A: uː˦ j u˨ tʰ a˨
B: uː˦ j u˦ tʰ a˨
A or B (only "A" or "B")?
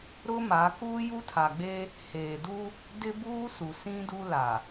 B